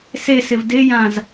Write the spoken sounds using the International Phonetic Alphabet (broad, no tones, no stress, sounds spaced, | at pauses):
s e s ɪ v d ɪ j ã z